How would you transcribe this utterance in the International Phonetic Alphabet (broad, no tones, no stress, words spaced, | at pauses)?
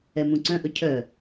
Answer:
ɛmũǀœ̃ʔɵ cʰœ